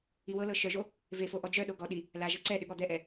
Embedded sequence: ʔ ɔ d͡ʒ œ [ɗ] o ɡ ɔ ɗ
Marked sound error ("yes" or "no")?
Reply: no